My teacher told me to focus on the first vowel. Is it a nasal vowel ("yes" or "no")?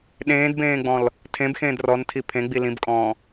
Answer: yes